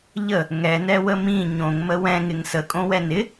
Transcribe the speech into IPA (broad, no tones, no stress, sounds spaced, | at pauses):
ʎ ə | ŋ ɛ n ɛ w ə m ĩ ɲ õ ŋ m ə w ɛ̃ ŋ ɪ ŋ s ə kʼ õ w ɛ n ɪ